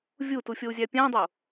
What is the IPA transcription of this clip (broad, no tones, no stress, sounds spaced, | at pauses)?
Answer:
vʲ u t u fʲ o u̯ zʲ æ pʲ æ̃ dˤ o